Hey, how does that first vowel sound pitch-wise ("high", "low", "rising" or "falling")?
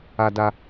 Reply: high